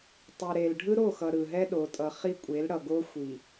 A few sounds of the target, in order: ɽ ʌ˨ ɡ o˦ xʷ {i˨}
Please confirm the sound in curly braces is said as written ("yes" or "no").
yes